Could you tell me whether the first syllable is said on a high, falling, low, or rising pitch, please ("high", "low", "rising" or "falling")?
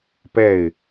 falling